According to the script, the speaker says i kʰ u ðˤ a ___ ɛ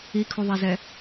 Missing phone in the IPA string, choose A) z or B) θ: A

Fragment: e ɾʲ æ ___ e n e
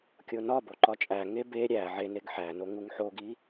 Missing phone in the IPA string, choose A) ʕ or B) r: A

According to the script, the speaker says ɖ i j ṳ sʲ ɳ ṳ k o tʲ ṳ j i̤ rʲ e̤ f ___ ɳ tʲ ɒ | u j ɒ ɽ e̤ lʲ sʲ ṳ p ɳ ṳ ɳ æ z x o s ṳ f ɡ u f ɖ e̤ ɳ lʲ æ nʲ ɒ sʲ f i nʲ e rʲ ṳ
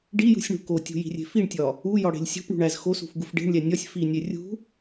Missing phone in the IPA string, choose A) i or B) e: A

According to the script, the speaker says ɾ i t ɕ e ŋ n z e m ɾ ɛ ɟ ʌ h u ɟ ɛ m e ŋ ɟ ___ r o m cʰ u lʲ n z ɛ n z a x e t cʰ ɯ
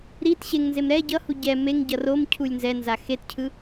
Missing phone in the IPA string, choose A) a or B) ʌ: B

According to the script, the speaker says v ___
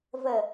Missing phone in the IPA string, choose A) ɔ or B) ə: B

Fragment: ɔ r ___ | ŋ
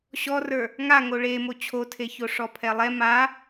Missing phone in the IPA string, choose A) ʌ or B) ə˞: B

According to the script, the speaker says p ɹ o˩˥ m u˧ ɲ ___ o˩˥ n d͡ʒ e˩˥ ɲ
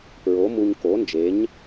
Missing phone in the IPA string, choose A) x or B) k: B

